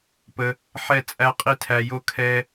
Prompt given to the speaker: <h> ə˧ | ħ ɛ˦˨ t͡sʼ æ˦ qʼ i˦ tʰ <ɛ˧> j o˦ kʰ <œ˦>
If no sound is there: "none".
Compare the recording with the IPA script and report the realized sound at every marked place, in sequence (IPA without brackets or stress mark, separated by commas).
p, æ˧, ɛ˦